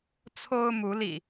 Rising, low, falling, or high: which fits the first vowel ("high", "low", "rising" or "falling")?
high